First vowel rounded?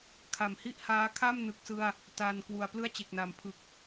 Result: no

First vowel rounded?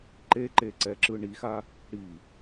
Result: no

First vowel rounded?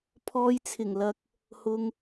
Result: yes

